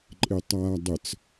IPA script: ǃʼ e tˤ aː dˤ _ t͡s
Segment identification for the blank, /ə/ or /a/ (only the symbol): ə